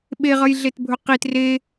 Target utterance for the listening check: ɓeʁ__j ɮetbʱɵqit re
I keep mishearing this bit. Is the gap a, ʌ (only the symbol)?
ʌ